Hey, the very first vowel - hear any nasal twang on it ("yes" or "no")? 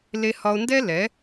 no